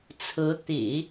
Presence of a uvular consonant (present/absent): absent